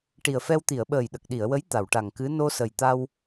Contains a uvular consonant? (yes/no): no